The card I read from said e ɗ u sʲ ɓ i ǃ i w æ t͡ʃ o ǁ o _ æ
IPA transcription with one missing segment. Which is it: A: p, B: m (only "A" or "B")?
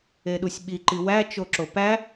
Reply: A